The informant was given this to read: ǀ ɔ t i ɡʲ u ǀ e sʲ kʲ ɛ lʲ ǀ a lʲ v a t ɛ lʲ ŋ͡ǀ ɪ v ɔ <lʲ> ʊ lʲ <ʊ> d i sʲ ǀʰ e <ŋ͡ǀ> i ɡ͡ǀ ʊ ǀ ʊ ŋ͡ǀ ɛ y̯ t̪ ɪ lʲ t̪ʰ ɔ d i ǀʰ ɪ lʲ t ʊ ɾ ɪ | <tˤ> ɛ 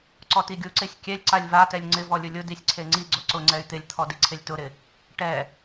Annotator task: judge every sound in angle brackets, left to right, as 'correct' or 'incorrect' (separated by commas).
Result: correct, correct, correct, incorrect